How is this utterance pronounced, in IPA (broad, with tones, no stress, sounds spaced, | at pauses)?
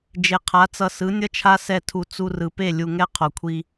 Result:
d͡ʒ e˨ qʰ a˨˦ t͡s ʌ˧ s ɯ˨˦ nʲ ʌ˦ t͡ʃʰ a˦ s ɛ˦˨ tʰ u˧ t͡s u˧ r ɯ˨ p e˦˨ lʲ u˧ ŋ ɛ˦ qʰ o˨ kʷʰ i˧